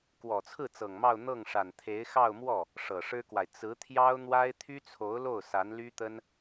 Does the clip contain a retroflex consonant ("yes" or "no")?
yes